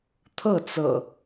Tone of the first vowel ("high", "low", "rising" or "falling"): falling